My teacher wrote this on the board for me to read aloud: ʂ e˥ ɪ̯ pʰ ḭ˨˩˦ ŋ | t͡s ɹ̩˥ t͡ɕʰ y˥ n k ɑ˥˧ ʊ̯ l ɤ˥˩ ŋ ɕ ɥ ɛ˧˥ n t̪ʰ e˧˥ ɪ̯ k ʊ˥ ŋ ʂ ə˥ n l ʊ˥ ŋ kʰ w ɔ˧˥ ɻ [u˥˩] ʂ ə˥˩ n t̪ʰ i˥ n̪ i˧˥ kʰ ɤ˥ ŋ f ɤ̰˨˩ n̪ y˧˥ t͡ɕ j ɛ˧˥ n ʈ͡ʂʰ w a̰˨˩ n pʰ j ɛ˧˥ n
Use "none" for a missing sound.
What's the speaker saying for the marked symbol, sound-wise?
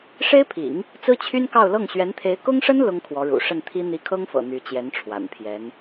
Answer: ṵ˨˩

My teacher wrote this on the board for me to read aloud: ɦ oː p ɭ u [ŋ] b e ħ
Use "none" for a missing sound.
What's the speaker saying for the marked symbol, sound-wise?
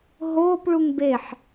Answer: ŋ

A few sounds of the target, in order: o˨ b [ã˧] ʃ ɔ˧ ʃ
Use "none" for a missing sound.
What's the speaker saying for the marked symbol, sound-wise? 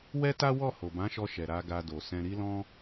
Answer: ã˨˦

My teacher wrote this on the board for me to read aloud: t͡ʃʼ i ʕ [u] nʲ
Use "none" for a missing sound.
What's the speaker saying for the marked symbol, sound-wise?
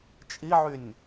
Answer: y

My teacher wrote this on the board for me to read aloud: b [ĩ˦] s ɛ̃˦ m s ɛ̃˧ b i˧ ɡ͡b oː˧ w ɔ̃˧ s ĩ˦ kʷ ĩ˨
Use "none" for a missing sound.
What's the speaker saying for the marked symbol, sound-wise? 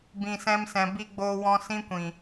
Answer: ĩ˧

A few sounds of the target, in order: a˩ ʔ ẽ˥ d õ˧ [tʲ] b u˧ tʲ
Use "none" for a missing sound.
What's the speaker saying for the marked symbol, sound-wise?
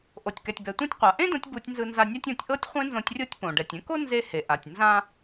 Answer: tʲ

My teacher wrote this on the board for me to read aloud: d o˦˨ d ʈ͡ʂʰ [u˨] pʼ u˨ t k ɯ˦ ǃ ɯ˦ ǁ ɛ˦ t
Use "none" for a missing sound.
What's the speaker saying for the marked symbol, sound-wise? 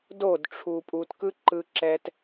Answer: u˨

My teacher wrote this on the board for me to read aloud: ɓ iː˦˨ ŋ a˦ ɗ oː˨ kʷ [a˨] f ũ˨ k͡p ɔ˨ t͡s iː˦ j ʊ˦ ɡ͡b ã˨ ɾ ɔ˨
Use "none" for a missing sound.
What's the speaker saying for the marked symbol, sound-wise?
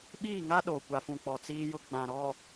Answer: a˨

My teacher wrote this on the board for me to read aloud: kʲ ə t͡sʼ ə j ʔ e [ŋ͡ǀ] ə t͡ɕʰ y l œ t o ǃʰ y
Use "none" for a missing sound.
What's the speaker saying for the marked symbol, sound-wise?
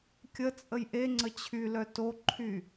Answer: ŋ͡ǀ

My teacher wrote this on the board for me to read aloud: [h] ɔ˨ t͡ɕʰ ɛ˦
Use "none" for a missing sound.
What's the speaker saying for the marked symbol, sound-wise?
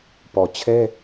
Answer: p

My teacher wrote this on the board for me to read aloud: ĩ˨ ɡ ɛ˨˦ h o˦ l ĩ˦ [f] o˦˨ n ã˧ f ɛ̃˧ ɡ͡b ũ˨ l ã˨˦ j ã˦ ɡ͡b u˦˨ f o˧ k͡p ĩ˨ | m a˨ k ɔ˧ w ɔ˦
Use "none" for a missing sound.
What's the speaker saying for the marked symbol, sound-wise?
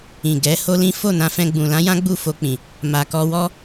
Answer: f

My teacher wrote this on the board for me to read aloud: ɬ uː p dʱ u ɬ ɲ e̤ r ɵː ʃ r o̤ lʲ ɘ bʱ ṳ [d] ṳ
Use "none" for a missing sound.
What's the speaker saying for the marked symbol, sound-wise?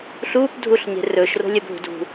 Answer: d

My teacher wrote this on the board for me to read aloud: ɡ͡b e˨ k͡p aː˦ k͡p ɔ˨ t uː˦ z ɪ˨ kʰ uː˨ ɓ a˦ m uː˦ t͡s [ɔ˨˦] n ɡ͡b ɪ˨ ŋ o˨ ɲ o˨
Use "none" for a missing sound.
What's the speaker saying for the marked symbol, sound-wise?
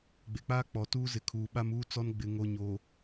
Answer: ɔ˦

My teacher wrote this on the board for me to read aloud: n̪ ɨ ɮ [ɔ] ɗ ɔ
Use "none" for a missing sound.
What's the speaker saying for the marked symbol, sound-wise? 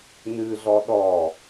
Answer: ɔ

